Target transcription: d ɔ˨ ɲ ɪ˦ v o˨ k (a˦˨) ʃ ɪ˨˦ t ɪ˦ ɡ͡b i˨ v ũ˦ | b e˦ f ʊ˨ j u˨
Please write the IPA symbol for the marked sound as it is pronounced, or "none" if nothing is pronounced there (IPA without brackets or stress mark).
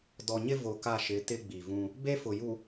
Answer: a˦˨